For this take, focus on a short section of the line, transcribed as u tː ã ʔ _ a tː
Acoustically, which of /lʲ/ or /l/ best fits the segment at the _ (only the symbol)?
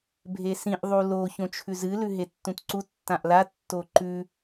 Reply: l